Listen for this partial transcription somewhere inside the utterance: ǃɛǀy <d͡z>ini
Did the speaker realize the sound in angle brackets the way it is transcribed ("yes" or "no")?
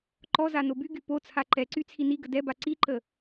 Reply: no